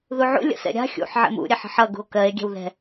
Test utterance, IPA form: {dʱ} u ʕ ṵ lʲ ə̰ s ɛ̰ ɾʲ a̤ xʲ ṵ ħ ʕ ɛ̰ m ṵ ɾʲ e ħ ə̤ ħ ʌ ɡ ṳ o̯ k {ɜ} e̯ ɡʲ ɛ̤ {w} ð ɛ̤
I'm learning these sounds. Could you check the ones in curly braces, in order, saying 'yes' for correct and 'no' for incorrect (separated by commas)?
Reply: no, yes, yes